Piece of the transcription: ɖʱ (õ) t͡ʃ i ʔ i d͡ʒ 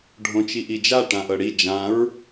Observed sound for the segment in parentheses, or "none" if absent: õ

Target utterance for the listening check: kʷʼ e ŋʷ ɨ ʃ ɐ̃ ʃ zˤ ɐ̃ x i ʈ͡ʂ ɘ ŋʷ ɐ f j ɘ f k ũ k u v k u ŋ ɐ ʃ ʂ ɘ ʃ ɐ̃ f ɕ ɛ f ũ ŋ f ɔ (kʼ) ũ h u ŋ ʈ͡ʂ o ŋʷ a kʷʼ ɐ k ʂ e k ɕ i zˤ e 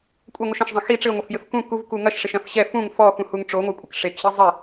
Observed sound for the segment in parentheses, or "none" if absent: x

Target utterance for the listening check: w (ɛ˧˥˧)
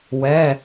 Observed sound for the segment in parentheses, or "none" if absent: ɛ˧˥˧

